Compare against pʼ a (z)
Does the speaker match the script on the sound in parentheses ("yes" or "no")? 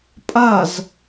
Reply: yes